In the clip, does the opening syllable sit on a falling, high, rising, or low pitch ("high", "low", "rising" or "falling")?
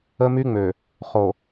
high